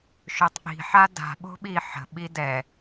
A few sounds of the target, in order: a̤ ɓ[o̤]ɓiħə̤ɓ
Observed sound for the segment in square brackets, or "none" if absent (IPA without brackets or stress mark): o̤